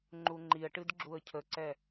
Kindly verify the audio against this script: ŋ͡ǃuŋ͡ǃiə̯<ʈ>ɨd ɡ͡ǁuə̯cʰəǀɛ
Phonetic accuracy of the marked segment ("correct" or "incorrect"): correct